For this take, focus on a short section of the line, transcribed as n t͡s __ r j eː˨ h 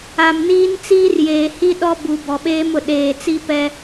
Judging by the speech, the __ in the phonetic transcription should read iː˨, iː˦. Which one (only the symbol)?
iː˦